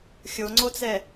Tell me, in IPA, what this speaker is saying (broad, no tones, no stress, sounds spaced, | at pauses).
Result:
xʲ o ŋ͡ǀ o t͡s ɛ